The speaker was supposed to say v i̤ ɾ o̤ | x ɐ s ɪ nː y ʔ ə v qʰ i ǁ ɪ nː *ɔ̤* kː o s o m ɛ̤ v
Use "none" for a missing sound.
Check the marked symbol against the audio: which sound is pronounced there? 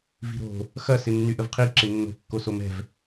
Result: o̤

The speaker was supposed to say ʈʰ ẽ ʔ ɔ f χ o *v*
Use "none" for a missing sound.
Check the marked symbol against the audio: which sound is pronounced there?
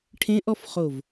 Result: v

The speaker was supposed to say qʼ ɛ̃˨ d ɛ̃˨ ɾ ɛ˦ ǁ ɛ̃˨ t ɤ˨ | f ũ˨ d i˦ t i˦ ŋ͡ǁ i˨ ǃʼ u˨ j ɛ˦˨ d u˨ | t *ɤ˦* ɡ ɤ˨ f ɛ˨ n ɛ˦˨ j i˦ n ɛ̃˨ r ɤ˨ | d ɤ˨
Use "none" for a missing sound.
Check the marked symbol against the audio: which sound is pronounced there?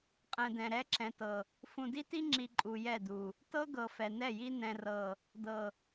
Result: ɤ˦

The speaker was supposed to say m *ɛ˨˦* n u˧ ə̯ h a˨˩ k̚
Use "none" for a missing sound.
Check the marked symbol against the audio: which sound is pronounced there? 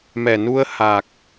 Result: ɛ˨˩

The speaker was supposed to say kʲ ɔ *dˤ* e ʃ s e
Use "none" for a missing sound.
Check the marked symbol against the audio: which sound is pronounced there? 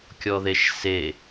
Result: ð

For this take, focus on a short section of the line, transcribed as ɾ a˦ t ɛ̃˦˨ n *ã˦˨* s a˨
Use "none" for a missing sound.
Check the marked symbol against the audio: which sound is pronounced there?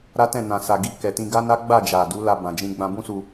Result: ã˨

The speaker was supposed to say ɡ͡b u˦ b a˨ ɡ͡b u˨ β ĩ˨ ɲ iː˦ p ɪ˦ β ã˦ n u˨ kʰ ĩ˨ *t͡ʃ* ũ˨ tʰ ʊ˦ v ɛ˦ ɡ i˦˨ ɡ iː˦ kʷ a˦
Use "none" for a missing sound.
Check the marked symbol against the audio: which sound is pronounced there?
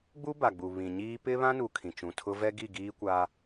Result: t͡ʃ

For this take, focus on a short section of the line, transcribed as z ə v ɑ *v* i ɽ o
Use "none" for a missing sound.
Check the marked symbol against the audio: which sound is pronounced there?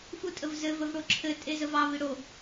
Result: v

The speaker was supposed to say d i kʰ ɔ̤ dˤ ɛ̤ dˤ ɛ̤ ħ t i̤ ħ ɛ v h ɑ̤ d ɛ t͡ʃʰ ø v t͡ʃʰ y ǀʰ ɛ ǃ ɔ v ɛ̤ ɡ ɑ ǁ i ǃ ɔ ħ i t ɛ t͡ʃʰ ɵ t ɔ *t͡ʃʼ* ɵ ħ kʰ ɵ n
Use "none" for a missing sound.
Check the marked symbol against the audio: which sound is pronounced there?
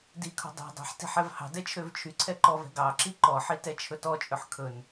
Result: t͡ʃʼ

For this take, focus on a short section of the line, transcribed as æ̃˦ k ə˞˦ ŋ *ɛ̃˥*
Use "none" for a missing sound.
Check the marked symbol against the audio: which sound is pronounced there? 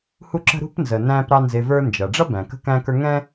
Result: ɛ̃˦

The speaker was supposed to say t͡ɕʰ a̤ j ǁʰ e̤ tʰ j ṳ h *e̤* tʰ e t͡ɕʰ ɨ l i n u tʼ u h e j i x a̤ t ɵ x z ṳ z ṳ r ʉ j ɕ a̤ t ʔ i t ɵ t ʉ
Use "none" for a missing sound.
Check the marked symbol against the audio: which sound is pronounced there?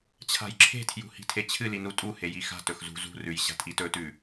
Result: i̤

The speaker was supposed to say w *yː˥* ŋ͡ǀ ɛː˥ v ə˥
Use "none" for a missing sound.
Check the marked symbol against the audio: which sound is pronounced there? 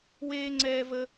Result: eː˥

